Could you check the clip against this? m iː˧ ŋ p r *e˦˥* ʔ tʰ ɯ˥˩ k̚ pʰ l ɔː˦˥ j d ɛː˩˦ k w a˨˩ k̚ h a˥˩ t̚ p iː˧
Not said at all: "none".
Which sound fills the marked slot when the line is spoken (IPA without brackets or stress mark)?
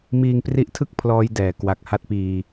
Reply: i˦˥